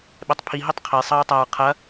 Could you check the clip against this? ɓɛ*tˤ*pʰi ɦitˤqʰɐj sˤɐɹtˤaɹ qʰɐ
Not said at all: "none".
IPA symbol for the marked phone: tˤ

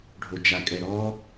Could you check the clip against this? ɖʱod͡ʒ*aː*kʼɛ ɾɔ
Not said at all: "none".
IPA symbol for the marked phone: a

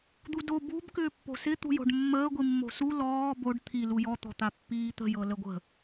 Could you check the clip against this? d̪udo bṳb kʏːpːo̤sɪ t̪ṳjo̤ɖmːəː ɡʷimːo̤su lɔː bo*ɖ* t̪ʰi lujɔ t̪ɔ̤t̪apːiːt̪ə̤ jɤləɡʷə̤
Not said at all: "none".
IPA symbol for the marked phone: ɖ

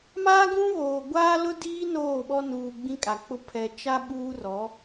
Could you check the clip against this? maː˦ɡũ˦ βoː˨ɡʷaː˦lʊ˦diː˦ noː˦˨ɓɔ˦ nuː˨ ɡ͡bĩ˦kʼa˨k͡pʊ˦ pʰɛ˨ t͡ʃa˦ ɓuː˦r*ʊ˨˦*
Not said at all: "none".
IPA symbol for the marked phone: ɔ˨˦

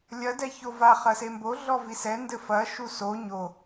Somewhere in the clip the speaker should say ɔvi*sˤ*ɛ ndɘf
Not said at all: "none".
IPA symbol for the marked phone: s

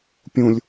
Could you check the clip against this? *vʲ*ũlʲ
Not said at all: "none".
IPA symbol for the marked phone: pʲ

